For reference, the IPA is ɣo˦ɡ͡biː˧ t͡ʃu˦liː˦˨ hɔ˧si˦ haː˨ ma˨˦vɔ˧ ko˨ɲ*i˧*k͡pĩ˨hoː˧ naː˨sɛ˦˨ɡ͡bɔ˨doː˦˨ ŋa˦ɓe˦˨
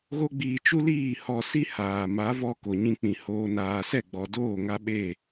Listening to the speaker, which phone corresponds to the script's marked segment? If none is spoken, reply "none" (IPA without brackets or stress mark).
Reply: ĩ˧